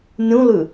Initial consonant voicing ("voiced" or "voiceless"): voiced